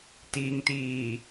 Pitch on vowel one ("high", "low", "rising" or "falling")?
low